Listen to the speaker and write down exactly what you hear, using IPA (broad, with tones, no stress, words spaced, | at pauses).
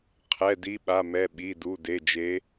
qʰɛ˩˧˩di˨˦ ɓa˩˧˩mɛ˩˧˩ ɓi˩˧˩du˩˧˩ de˩˧˩d͡ʒe˨˦